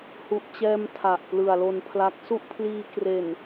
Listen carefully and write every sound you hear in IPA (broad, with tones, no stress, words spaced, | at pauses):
hu˨˩ʔt͡ɕɛː˧m tʰa˨˩ʔplɯ˨˩a̯lo˧npʰla˦˥k̚ su˥˩ʔpʰliː˧kre˨˩n